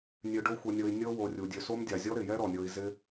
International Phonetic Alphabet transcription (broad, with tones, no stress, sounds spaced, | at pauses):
nʲ ø˧ ɖ o˦ xʷ ɤ˧ nʲ ɤ˧ i̯ nʲ ɤ˦ w o˧ rʲ u˨ dʲ ø˧ s o˦ m dʲ a˨ zʲ ɔ˦ ɾ ɪ˨ j ɛ˦ ɾ ɔ˨ nʲ ɤ˧ i̯ z ɪ˦